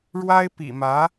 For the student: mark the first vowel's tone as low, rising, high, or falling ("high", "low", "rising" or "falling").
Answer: high